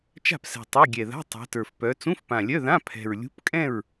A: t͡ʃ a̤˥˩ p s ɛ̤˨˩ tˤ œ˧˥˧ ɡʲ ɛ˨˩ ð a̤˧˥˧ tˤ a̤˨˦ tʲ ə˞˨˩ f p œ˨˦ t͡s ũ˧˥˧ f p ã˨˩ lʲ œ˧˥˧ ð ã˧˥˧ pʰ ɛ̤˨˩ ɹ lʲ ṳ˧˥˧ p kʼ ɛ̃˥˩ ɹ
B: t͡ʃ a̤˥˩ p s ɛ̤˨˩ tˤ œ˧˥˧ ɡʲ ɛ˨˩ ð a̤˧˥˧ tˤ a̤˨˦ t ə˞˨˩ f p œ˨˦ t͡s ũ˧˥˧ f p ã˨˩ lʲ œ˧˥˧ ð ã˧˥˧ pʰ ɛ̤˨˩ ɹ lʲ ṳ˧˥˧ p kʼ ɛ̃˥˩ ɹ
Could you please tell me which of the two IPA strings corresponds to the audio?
B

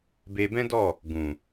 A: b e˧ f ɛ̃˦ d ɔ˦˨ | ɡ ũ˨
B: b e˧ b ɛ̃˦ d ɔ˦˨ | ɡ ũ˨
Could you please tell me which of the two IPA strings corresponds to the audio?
B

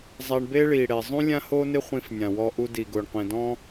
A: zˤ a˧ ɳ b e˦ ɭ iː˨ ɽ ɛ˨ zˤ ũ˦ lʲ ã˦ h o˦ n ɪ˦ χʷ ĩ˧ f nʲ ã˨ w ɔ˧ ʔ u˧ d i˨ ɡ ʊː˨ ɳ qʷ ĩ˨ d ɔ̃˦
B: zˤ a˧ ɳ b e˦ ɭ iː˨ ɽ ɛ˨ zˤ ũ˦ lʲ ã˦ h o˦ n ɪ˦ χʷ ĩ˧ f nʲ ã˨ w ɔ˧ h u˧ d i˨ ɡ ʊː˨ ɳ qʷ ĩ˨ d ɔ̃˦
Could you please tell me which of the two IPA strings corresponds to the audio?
A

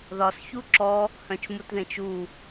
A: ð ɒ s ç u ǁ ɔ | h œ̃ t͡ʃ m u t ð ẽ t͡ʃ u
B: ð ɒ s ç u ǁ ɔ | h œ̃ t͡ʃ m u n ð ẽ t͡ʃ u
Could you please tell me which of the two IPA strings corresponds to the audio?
A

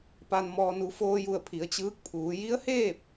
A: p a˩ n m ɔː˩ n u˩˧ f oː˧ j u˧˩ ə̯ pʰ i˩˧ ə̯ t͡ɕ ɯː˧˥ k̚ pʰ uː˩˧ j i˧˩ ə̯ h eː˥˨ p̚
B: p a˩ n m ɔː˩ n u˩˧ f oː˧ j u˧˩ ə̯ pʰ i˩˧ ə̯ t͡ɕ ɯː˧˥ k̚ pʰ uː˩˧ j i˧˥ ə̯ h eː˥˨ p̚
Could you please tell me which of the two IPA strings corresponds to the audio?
B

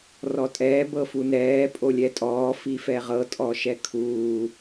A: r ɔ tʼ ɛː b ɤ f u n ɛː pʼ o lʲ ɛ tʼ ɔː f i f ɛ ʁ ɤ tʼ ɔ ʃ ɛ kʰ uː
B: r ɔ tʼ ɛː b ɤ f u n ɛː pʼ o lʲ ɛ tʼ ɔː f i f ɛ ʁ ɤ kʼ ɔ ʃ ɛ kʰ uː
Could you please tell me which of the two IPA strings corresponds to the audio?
A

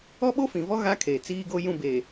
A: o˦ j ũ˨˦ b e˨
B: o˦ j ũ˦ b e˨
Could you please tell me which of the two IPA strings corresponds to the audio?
B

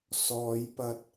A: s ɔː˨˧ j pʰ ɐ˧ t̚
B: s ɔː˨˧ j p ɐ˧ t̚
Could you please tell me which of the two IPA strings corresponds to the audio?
B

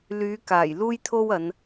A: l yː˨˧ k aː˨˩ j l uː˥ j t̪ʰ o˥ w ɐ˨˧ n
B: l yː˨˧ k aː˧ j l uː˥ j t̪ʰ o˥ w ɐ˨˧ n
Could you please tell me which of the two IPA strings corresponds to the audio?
A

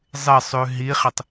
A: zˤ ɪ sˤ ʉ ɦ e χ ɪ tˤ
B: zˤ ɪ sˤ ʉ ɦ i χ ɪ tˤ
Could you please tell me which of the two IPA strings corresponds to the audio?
B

